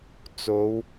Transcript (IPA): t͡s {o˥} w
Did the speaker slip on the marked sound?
yes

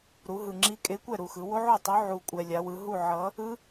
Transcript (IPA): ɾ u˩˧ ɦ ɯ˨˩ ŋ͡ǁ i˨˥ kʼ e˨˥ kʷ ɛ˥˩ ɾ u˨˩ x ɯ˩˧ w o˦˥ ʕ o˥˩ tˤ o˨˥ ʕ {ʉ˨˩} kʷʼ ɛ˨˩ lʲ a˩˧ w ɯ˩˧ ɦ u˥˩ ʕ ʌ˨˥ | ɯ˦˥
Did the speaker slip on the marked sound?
yes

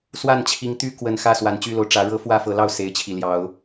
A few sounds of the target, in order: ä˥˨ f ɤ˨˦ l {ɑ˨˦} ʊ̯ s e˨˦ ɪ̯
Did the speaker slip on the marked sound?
yes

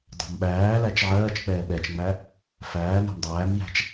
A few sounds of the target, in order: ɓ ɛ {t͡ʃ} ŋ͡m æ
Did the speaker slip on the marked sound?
no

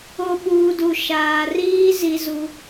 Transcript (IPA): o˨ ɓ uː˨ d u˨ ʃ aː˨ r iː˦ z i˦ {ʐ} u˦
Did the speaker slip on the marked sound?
yes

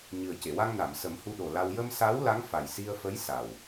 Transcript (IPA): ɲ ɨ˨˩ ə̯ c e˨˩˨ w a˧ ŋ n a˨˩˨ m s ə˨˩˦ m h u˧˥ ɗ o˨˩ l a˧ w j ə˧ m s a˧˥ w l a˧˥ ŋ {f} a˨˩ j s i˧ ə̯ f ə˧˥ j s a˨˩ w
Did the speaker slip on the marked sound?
no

